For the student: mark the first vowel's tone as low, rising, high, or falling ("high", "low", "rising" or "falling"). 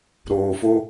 low